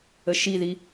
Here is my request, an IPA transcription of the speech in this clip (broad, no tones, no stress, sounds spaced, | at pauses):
ə ʃ i ð i